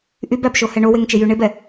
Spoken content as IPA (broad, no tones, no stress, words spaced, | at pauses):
ʔybæbʃohɛ ɳoweŋt͡ʃejy ɳebɛ